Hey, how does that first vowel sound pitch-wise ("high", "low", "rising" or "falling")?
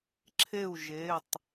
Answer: falling